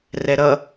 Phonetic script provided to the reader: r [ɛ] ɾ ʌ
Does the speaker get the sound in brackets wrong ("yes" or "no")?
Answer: no